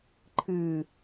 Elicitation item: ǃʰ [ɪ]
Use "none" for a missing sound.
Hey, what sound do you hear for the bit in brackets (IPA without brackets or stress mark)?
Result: ɨ